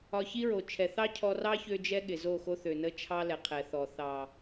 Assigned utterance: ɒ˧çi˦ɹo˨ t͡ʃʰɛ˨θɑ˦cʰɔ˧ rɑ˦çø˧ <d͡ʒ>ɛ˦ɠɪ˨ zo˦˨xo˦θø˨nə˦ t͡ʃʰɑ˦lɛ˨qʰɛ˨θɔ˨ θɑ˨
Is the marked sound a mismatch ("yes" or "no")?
no